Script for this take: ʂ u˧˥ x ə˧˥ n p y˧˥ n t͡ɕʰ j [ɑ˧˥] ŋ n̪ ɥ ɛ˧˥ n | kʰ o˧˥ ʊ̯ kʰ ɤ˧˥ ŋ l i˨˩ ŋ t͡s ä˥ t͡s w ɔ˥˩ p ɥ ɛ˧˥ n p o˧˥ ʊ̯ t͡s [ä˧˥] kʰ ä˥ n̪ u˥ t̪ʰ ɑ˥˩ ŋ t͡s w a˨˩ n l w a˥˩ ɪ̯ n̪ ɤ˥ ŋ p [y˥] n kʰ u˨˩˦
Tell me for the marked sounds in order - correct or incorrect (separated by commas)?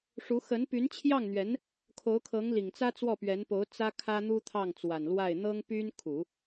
incorrect, incorrect, correct